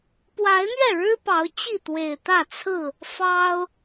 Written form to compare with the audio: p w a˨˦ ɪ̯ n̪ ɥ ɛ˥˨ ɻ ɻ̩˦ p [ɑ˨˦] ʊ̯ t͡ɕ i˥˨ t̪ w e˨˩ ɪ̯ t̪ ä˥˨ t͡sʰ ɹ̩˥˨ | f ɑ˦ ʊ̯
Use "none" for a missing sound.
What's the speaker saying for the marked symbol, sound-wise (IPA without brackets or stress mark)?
ɑ˨˦